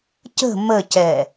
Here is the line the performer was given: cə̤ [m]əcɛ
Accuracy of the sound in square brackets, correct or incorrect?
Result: correct